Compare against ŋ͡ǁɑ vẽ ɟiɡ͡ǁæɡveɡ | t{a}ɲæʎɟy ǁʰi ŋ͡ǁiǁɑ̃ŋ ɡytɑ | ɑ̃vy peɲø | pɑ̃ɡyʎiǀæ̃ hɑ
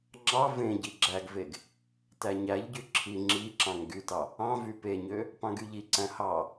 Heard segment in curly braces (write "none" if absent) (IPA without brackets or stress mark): æ